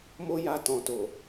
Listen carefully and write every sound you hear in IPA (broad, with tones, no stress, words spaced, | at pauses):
mo˦ja˧ tɔ̃˨to˨